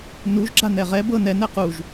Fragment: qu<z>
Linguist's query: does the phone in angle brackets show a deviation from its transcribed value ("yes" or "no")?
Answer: yes